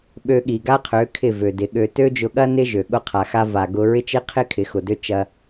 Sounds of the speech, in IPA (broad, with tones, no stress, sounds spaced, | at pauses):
ɓ ø˧ ɠ i˨ ɡ a˦ qʰ ø˨˦ kʰ ɪ˦˨ v ø˨ d ɪ˨˦ ɠ ø˧ t ø˦ d͡ʒ ʊ˧ ɠ ɐ˦ n ɪ˦ ʒ ø˨ ɠ ʊ˧ qʰ a˨ x a˧ v a˨ ɡ ʊ˧ ɹ ɪ˦ t͡ʃ ɪ˦ qʰ ɪ˦ kʰ ɪ˨˦ x ʊ˨ d ø˦ t͡ʃ ɐ˧